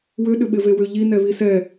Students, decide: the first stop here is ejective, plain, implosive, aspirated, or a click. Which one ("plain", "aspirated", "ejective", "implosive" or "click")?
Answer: implosive